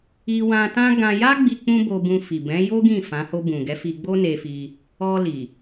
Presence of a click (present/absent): absent